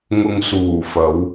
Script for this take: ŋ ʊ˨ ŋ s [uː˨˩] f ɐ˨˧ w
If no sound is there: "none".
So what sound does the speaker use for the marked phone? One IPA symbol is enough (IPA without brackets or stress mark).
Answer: uː˨˩